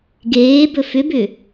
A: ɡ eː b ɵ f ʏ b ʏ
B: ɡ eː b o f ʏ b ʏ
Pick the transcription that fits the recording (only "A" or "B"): A